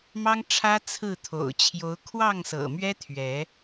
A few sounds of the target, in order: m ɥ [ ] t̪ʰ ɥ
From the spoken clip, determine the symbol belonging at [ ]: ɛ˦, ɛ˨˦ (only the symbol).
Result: ɛ˦